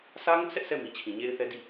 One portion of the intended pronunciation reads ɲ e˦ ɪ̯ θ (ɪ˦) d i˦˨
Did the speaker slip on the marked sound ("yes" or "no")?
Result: yes